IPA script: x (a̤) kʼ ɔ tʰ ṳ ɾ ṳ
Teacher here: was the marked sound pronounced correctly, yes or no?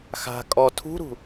yes